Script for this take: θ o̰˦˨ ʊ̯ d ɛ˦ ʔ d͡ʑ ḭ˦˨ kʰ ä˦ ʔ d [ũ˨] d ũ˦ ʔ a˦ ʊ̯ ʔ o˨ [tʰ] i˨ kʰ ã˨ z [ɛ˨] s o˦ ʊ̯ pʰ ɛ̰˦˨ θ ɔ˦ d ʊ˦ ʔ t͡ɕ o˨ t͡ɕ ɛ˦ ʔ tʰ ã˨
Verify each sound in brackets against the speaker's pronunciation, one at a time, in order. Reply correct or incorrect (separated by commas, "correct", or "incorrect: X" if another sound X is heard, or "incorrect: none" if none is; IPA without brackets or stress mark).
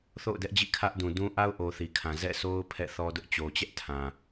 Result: correct, incorrect: θ, incorrect: ɛ̰˦˨